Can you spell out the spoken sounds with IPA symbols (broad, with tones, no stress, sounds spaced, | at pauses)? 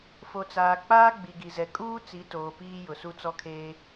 f o˨ t͡s aː˨ k͡p aː˦ ɡ͡b i˨ ɡ i˨ z ɛ˨ kʼ uː˦ t͡s i˨˦ t oː˨ p iː˦ j ʊ˨ s u˦ t͡s ɔ˦ kʰ eː˦